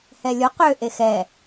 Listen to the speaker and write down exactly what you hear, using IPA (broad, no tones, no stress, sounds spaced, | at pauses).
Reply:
h ɛ lʲ o q ø ʔ e x ɛ